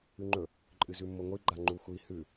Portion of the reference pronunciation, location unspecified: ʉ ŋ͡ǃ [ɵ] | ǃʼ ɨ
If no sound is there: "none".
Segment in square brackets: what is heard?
ɵ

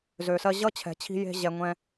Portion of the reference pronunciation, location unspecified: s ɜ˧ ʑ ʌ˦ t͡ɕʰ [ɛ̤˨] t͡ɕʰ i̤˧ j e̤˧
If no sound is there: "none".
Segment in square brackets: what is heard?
ɛ̤˨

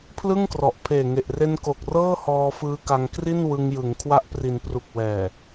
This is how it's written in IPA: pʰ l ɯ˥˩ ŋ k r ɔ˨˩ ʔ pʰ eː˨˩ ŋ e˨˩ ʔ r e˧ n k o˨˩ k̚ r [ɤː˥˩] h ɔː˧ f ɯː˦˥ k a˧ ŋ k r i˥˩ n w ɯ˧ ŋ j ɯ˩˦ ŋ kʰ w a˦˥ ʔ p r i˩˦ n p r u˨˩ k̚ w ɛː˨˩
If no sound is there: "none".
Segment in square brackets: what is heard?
ɤː˥˩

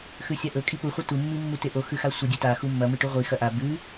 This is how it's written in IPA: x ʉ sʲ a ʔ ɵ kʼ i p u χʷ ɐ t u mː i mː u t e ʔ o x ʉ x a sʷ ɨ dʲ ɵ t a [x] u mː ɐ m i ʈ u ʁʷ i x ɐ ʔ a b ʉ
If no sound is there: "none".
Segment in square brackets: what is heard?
x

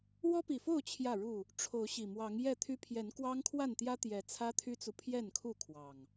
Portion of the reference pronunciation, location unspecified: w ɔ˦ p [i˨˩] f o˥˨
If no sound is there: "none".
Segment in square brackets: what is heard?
i˨˩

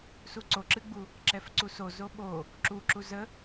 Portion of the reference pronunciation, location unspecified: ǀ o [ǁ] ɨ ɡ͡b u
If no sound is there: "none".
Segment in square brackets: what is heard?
ǁ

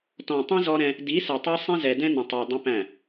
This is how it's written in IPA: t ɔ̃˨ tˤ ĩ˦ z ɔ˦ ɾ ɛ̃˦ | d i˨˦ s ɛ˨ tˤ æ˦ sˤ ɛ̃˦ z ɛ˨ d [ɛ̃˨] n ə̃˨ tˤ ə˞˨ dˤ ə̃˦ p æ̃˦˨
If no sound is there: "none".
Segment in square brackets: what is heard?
ɛ̃˦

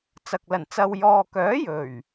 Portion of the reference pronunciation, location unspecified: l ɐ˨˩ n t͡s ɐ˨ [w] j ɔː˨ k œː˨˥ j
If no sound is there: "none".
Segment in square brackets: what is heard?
w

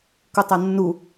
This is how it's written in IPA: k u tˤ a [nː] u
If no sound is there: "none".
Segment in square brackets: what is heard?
nː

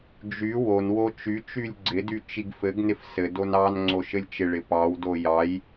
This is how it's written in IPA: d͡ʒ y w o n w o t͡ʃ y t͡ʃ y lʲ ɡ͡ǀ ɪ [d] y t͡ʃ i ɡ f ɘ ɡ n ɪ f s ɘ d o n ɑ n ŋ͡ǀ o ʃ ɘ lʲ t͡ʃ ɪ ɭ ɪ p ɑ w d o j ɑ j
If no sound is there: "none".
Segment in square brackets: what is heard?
d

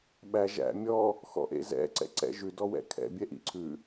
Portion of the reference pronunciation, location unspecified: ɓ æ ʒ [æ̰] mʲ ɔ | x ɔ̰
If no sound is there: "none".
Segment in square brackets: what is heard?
æ̰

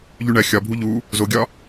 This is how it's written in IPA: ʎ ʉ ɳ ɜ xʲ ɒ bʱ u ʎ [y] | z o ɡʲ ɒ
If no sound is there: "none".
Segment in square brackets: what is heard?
u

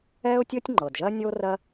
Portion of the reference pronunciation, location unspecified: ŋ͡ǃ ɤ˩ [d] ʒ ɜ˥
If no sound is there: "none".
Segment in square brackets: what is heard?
d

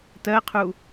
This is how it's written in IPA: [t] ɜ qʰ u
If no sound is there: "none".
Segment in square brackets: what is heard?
t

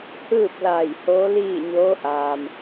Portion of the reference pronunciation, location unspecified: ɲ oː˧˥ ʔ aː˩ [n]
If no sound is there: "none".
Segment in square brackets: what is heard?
m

